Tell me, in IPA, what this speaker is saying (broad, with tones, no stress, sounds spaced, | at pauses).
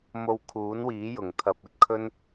m o˧ w kʰ uː˨˥ n w iː˨˥ j ʊ˨˩ ŋ t̪ʰ ɐ˨ p̚ ɵ˧ t̚ kʰ ɵ˥ n